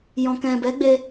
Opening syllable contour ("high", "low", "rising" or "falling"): low